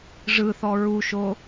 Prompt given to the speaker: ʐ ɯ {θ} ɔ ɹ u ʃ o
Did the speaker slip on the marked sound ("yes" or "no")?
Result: no